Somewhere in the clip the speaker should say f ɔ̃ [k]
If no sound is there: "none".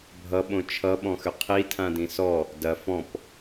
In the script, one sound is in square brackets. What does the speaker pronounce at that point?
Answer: p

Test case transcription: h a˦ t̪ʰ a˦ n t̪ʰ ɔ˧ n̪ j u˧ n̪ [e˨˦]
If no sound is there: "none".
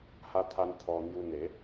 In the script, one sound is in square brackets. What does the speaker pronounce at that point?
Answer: e˨˦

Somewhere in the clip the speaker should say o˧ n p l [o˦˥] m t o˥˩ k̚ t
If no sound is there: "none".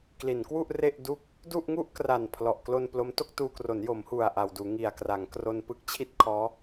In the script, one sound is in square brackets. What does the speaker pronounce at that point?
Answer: o˦˥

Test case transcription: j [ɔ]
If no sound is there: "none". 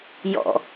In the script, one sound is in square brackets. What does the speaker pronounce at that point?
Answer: ɔ̰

